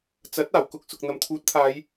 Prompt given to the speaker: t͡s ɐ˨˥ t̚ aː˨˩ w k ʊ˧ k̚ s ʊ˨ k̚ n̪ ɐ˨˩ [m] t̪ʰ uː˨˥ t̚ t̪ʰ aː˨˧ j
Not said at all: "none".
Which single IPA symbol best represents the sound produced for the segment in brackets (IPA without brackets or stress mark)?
m